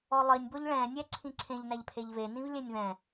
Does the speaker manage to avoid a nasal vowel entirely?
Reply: no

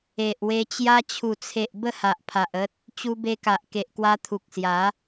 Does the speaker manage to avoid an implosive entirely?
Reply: yes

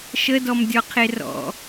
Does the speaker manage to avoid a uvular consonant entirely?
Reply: no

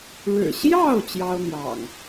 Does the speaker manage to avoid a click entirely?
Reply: yes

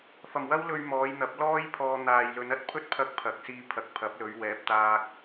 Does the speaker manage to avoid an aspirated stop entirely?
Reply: no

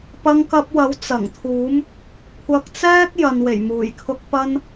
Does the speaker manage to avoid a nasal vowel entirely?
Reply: yes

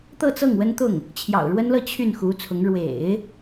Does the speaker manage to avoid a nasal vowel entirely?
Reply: yes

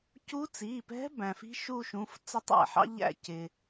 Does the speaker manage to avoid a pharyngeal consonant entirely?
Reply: no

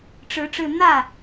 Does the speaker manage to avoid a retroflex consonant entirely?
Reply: no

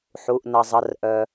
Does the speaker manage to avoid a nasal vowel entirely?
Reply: yes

